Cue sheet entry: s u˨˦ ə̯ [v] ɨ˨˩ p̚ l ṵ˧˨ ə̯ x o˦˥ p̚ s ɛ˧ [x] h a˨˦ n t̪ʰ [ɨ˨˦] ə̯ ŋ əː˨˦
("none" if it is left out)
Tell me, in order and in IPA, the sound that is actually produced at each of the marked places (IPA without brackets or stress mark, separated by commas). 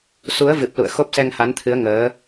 v, ŋ, ɨ˨˦